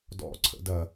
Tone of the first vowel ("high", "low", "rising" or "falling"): high